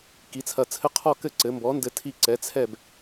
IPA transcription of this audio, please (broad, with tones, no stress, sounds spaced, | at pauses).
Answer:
k i˩˥ t͡sʰ ɐ˧˩ t͡sʰ ɘ˧˥ qʰ ɔ˥˨ k ɘ˥˨ ǀ ɘ˩˥ m b ɔ˩˥ n d ɘ˧ tʰ i˧ ǀ ɛ˩˥ t͡sʰ ɛ˥˨ b